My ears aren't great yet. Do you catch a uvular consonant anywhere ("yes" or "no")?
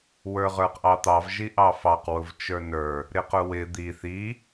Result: yes